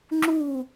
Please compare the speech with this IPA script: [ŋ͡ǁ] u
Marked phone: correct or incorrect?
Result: correct